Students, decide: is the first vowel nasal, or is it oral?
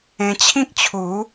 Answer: nasal